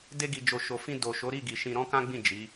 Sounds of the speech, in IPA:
d e˧ ɡ i˨ d͡ʒ o˨ ʃ o˨ f ĩ˧ d o˨ ʃ o˨˦ ɾ i˦˨ ɡ i˨ ʃ ĩ˧ ɾ ɔ̃˦ k ã˦ ɡ͡b ĩ˦˨ d͡ʒ i˨˦

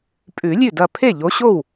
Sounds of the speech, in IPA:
pʼ ʉ˨˩˦ lʲ ʉ˥˩ d ɐ˧˩ pʰ e˥˩ ʎ o˨˥ ɕ o˥˩ w

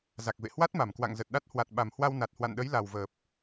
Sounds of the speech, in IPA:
z a˨˩ k̚ v ḛ˧˨ h w a˦˥ t̚ m a˨˩ m k w a̰˧˨ ŋ z ə˨˩ t̚ ɗ a˦˥ t̚ h w a˨˩ t̚ ɓ a˨˩ m h w a˧ w n a˨˩ t̚ h w a̰˧˨ n ɗ ə˨˦ j l a˨˩ w v əː˨˩ p̚

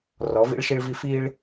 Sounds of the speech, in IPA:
r ɔ˨˦ v ḭ˦ ɭ ʃ i˦ ɭ v i˦ f iː˦ ɭ

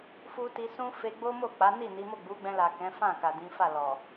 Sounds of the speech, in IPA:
f u˧ t i˧ s ũ˦ f e˧ ɡ͡b o˦ m o˦˨ k͡p a˨˦ n i˦˨ n i˨˦ m o˦˨ ɡ͡b u˨˦ ɡ͡b ɛ̃˧ l a˨ k ɛ̃˨˦ f ã˦˨ k a˨ d ĩ˨˦ f a˦˨ l ɔ˨

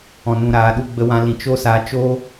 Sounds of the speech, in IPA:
ɔ̃˨ n ũ˨ ɾ aː˨ ɗ u˧ ɡ͡b ə˧ w ã˧ l ĩ˨ t͡ʃ o˦ s a˧ t͡ʃ oː˦

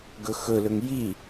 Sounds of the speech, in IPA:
ɡ ɵ x ɵ l ɵ ŋ j i

